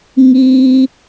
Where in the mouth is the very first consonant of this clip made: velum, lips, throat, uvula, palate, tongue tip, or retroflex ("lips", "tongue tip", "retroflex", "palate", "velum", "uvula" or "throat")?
velum